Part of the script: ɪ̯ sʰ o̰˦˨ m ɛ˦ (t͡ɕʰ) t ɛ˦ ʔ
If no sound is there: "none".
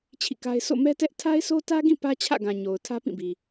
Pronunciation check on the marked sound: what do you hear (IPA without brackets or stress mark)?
none